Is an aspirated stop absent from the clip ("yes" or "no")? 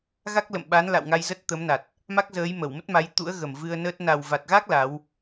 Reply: yes